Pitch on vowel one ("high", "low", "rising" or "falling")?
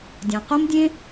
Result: low